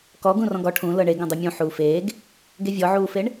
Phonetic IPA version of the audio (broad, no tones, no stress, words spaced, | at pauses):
kɔ ɡũrɔ̃ɡɔ ʈʰũ lɤɳeɡõ dˤʉmʲũ ħuːfeːɡ | ɡevʲɔʕuːfeɳ